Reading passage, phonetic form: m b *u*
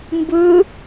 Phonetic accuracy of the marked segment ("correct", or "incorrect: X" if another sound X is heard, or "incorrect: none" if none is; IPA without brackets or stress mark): incorrect: ɯ